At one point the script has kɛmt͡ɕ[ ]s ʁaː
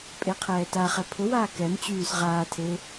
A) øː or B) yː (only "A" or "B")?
B